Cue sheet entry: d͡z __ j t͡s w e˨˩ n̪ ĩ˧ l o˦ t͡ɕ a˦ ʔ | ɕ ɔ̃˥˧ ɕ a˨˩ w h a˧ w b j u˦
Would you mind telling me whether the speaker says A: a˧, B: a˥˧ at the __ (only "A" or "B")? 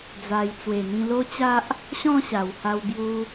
A